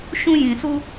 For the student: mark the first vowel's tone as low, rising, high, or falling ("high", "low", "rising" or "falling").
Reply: high